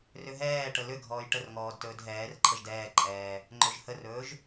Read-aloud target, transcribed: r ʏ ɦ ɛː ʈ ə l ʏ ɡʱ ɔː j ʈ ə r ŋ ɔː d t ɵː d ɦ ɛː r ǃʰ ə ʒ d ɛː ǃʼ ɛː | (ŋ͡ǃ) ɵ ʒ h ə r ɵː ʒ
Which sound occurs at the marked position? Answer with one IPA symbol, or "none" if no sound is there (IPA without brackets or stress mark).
ŋ͡ǃ